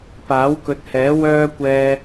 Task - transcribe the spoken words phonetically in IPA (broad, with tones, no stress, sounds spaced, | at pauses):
p aː˨˥ w k ɵ˨˥ t̚ h ɛː˨˥ w œː˥ kʷ ɛː˧